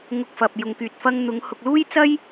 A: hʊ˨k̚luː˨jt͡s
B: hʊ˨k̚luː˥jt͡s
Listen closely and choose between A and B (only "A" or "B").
B